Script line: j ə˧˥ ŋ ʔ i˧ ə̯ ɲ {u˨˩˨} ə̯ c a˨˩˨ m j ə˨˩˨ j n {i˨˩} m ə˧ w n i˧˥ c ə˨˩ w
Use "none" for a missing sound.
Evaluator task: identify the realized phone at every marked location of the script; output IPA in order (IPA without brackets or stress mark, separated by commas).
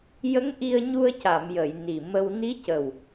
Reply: u˧, i˨˩